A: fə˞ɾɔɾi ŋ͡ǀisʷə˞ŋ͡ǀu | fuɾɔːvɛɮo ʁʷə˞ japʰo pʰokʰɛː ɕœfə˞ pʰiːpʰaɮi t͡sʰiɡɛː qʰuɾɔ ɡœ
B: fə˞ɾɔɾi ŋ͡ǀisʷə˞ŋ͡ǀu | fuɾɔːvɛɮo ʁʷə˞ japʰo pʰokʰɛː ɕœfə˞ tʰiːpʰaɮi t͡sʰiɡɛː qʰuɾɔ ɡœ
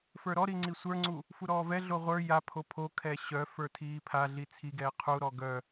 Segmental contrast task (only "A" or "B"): B